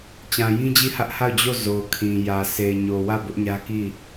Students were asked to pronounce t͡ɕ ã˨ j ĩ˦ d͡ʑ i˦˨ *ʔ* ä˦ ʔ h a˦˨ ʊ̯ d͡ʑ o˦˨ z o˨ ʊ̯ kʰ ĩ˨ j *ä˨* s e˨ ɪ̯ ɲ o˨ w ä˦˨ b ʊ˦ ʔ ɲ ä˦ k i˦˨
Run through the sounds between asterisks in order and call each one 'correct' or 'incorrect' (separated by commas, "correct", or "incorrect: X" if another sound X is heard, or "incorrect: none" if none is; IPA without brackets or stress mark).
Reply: incorrect: h, correct